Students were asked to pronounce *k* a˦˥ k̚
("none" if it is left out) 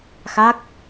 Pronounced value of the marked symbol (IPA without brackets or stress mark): x